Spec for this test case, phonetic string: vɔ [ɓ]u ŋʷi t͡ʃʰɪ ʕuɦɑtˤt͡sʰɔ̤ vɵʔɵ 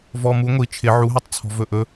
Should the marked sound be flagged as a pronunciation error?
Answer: yes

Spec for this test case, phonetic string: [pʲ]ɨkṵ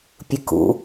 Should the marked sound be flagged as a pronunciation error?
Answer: no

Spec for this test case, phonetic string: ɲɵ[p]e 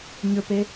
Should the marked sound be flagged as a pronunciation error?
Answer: no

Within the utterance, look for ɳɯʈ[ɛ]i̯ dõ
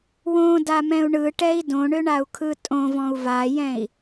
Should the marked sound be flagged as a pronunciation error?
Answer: no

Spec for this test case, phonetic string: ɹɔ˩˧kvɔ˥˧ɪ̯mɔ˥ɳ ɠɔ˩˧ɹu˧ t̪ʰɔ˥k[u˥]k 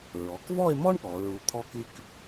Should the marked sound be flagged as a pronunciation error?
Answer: yes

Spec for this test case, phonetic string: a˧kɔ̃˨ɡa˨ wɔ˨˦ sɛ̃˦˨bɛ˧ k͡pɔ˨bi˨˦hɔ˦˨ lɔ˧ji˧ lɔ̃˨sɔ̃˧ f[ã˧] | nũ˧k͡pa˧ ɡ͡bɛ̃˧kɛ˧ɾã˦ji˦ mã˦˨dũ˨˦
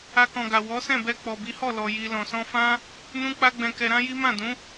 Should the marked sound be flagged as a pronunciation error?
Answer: yes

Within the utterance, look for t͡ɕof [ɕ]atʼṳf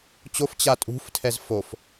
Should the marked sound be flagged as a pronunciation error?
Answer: yes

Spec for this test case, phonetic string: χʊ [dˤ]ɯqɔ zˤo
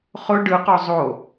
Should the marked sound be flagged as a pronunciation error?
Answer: yes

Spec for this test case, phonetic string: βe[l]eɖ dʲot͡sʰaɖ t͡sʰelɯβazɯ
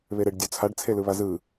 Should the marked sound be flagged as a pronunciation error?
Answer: yes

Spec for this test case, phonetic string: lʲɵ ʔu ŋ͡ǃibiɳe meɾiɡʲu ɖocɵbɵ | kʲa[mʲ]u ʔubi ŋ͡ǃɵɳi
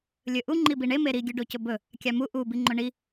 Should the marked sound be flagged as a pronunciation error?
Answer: yes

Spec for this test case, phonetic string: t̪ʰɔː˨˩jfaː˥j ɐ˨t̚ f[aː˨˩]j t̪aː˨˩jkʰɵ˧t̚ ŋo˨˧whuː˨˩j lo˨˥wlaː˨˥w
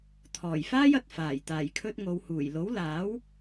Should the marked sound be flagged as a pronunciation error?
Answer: no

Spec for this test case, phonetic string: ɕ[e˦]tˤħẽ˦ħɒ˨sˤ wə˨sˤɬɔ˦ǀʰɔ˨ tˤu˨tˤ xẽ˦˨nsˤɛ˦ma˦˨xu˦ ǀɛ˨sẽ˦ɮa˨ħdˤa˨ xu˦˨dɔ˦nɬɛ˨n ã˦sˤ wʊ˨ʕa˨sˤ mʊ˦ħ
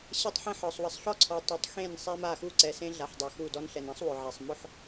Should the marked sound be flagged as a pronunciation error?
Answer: yes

